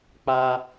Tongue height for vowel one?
low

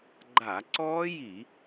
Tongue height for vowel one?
low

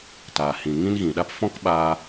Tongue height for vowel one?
low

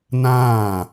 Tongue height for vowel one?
low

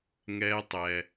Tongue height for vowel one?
mid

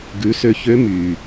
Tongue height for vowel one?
high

